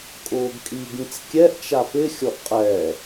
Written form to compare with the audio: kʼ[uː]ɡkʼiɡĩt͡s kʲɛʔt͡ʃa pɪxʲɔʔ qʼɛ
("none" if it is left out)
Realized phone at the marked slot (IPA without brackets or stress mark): ʊː